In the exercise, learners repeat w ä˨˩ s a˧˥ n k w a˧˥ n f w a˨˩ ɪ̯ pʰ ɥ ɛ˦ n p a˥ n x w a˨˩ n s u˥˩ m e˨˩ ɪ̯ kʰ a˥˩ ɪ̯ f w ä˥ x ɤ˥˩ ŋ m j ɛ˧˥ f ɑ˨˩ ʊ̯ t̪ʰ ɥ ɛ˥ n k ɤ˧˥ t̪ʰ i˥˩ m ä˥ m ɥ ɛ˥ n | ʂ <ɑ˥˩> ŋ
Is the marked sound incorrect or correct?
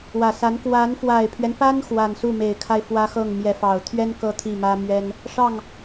correct